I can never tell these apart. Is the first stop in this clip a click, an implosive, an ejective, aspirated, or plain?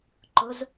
click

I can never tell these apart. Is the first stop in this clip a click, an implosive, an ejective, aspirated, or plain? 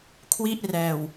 aspirated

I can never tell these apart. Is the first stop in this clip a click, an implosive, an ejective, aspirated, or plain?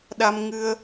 implosive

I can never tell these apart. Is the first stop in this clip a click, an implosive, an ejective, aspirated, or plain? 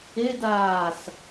plain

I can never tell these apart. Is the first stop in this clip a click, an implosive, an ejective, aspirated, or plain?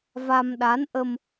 implosive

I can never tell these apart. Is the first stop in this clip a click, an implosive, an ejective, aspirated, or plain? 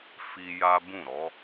plain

